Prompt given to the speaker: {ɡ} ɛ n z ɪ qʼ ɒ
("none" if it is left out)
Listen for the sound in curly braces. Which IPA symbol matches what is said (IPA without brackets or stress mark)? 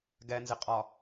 ɡ